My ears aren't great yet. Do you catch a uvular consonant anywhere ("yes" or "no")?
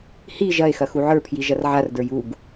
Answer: no